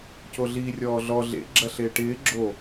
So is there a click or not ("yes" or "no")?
yes